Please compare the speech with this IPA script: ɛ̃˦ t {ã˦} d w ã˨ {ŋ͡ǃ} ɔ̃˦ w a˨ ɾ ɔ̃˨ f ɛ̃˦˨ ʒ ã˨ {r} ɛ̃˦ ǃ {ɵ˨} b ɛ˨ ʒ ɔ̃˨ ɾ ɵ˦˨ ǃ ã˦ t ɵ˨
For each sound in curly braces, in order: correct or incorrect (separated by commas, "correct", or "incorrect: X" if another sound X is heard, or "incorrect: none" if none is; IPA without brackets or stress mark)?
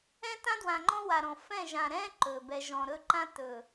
correct, correct, incorrect: ɾ, correct